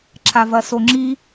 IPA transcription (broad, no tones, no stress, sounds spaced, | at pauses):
ǁʰ a v ɐ s o ŋ͡ǁ i